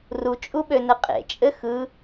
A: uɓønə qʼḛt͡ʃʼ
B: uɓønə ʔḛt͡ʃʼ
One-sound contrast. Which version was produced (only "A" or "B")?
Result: A